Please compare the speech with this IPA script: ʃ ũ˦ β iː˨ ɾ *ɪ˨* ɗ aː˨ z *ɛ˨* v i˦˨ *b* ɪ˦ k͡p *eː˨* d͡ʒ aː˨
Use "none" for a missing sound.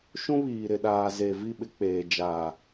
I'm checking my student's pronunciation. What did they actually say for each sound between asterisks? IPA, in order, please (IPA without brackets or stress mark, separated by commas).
ɪ˨, e˨, ɓ, eː˨